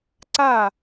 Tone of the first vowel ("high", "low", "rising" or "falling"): falling